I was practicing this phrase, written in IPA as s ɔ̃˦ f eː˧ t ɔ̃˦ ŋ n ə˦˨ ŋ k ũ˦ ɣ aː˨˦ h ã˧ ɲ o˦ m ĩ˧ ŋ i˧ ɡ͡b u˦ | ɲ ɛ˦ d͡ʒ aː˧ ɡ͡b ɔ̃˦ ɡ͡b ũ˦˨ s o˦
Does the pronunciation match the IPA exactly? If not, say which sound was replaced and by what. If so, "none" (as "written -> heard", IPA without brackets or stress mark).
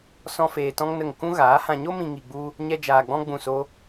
none